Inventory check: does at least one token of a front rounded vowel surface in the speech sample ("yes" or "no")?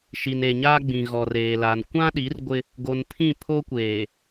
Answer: no